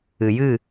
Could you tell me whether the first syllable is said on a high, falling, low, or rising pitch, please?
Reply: low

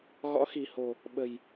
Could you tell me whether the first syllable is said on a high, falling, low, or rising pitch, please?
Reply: rising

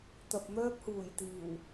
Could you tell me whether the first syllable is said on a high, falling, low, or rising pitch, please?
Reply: low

